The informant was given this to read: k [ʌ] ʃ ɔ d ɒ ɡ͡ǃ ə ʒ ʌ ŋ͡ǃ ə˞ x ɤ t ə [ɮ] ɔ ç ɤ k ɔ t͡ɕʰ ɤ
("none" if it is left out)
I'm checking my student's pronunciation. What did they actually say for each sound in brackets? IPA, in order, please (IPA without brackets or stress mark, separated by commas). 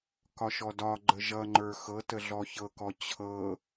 ɒ, ɮ